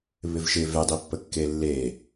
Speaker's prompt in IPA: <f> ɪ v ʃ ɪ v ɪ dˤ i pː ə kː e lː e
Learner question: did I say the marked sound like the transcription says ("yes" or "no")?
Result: no